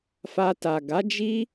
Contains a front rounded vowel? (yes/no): no